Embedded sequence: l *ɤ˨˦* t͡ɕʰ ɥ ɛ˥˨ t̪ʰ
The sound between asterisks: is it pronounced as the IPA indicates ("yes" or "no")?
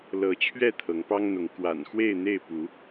yes